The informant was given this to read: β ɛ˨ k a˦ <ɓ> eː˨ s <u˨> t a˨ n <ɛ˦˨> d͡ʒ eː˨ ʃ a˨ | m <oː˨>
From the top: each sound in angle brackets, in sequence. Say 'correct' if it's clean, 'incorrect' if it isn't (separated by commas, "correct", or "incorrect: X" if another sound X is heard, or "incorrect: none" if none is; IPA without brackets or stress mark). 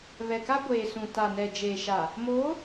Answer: incorrect: ɡʷ, incorrect: ũ˨, incorrect: ɛ˨, incorrect: oː˨˦